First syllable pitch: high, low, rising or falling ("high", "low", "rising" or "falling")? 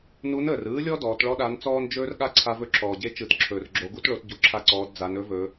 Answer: rising